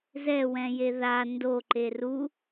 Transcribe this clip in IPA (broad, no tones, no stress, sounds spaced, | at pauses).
z ɛ w ɛ̃ j e ð a n d o ǃ e r u